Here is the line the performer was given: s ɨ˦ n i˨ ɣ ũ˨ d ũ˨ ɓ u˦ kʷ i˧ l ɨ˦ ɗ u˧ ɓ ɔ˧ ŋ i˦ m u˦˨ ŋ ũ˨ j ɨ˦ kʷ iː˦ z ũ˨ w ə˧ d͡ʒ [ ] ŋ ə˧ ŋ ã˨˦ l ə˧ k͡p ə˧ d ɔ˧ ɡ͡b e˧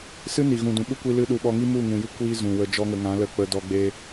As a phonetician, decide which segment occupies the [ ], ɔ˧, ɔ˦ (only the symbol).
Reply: ɔ˦